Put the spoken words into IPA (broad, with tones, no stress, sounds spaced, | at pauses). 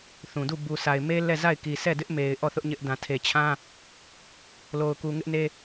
θ ũ˨ d u˦˨ b u˨ s a˨ ɪ̯ m e˦ l ɛ˦˨ z a˦˨ ɪ̯ k i˨ sʰ ɛ˦˨ d ɪ˦ ʔ m e˨ ɪ̯ ʔ ɔ˦˨ θ ʊ˦ ʔ ɲ ɪ˦ ʔ d ã˨ tʰ e˨ t͡ɕʰ ã˦ | l o˨ ʊ̯ k u˨ ŋ ɪ˦ ʔ n e˦